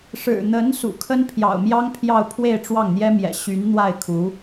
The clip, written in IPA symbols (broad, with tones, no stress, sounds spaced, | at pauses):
ʂ ɻ̩˨˩ n̪ ə˧˥ n s ṵ˨˩ kʰ ə˥ n pʰ j ɑ̰˨˩ ʊ̯ m j ɑ˥ ŋ pʰ j ɑ˥˧ ʊ̯ pʰ w e˥˧ ɪ̯ ʈ͡ʂ w ɑ˥˩ ŋ n̪ j ɛ˥ m j ɛ̰˨˩ ɕ y˧˥ n n̪ w a˥˩ ɪ̯ kʰ u˧˥